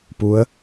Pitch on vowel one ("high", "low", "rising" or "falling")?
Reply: rising